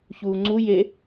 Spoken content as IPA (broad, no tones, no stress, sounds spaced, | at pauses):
ç uː ŋ͡ǀ u j e